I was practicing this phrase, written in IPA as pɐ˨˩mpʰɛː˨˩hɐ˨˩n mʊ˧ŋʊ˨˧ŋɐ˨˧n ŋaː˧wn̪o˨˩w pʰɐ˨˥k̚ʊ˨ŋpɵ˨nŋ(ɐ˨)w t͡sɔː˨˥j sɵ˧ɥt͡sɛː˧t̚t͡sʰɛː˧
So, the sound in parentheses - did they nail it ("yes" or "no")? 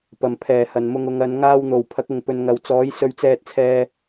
yes